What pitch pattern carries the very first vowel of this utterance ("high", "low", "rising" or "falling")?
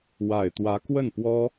low